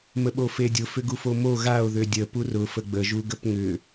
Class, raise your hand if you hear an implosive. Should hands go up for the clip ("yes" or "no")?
yes